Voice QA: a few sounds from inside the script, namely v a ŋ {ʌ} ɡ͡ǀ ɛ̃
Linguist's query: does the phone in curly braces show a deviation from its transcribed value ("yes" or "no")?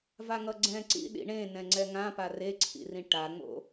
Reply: no